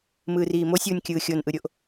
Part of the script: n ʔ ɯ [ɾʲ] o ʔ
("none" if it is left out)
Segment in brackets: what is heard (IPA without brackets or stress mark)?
ɾʲ